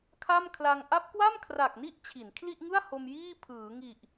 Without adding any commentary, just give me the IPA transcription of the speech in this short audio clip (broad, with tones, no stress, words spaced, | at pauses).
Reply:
kʰa˥˩mkʰla˧ŋ ʔa˦˥p̚kwa˥˩mkʰra˨˩k̚ni˦˥ʔ t͡ɕʰi˩˦nkʰli˥˩ʔŋɯ˥˩a̯ ho˧mjiː˥˩ pʰɯː˩˦ŋi˨˩ʔ